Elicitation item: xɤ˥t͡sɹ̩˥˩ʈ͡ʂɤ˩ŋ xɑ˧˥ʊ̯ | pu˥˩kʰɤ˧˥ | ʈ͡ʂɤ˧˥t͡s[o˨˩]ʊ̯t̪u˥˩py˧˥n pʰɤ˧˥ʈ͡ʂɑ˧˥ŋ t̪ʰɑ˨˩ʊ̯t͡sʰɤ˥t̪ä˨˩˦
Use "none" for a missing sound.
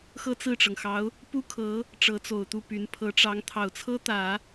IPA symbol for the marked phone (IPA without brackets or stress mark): o˨˩